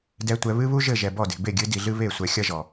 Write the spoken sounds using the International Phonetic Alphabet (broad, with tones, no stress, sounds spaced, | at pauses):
d ɛ˨ tʷ ɛ˨ β ɨ˦ β u˦ ʒ ɘ˦˨ ʒ ɛ˨ b ɔ˦˨ d e̤˨ b e˦˨ ɡʲ ɨ˨˦ d i˨ ɮ ɨ˦ β e˦˨ sʷ ɛ˨ xʲ ɐ˦ ʒ ɔ˨